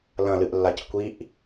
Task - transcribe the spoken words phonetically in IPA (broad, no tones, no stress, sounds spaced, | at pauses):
l ɐ̃ l ɨ ʔ lː a c kʷ i ʔ